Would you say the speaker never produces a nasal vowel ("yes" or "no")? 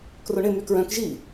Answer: no